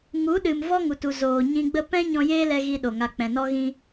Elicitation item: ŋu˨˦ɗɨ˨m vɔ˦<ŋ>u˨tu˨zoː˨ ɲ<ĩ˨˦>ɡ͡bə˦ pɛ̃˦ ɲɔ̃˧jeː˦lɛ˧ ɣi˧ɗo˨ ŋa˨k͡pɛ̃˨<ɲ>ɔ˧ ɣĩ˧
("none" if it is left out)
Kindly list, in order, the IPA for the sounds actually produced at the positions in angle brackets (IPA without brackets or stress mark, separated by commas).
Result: ŋ, ĩ˧, n